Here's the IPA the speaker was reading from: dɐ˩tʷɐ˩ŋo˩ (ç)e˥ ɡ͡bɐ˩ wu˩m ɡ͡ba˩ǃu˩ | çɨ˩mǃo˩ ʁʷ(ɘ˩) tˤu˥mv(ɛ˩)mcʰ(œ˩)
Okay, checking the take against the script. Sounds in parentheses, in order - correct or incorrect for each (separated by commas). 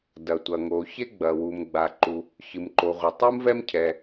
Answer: correct, correct, incorrect, incorrect